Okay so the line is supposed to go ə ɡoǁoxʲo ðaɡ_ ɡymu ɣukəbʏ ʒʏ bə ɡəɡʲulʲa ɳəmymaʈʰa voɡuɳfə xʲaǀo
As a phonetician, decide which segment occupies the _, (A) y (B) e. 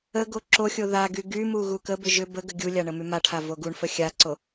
A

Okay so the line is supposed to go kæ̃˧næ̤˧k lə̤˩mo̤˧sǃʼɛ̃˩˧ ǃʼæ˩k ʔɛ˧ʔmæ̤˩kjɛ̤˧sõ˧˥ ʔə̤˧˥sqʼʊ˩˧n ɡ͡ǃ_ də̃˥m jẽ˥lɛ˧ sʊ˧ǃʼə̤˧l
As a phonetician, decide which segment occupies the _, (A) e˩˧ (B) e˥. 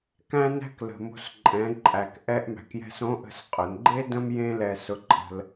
B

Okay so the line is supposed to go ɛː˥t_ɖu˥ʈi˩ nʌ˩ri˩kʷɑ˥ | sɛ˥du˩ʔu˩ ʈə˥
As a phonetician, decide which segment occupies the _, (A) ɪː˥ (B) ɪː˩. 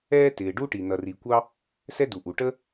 B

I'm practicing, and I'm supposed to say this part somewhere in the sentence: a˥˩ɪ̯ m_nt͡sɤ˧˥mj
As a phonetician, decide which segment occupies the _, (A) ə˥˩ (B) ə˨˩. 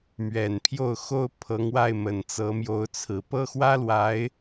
B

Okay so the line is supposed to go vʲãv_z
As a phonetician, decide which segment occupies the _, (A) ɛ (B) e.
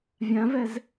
A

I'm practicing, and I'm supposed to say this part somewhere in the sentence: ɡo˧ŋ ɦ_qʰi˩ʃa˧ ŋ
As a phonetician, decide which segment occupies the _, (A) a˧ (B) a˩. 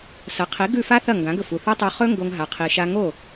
B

